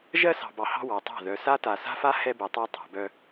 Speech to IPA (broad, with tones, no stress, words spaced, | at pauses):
ʒɜ˦ sɑ̤˨bɑ˨hɑ̤˦ wɑ˨tˤɑ̤˦˨ ðœ˨ sa˦ta˨ sa̤˦fa˦ hɛ˦bɛ˨tˤa˦ tˤɑ̤˨bœ˦